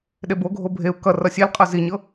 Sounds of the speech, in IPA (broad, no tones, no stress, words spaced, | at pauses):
ɗeboɡʱo bʱeu̯ kʌ rʌsʲel qʼɤziɲɤ